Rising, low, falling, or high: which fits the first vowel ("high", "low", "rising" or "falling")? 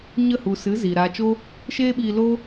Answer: falling